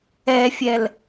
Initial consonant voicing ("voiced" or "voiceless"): voiceless